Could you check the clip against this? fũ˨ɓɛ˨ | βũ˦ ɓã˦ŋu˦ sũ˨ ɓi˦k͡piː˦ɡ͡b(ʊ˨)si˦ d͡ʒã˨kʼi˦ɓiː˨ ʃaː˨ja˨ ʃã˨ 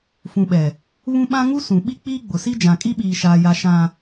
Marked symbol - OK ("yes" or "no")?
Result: yes